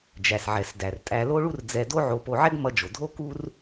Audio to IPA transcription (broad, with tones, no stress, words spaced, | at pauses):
d͡ʒæ˩sʕɛ˩sdæ˩rtʼæ˧ lo˥ɭu˥rd͡zɛ˧ do˥ʕo˧po˧ ʕɛ˥ɡmʌ˧d͡ʒo˩dʱo˥ ku˥r